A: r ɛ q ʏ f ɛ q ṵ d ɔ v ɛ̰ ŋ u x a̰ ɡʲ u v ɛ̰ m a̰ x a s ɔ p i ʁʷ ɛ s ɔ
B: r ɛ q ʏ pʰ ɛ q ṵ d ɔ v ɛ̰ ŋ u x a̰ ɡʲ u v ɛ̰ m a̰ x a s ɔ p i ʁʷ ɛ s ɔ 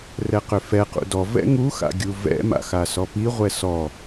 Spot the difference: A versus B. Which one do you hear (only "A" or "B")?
A